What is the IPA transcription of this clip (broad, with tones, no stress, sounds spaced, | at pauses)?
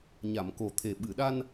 ɲ a˨˩˨ m k o˨˩ t̪ʰ e˨˩ ɓ ɨ˨˩˨ ɗ a˧ n